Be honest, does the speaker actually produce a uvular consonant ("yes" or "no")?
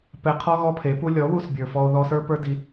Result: yes